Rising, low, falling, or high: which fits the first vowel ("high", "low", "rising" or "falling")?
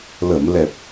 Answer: low